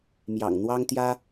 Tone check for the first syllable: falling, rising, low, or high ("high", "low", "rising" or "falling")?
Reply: low